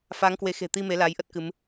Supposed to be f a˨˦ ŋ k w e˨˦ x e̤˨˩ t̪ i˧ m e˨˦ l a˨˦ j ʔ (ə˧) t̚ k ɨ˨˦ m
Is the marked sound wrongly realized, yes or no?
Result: yes